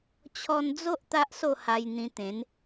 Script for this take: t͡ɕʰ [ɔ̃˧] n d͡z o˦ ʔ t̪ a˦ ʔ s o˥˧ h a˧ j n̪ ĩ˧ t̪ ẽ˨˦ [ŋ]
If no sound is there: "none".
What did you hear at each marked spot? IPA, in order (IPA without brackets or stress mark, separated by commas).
ɔ˧, n